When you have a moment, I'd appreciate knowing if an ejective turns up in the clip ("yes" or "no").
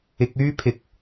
no